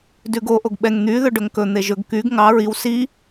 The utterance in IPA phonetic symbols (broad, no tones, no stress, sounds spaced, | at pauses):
d ʉ ɡ o ʔ o ɡ ɓ ɛ ŋ n̪ y ð ɵ ɖ ɵ ŋ k ɵ n̪ e ʒ ɵ ɡ k y ɡ ŋ ɑ ɹ i w s i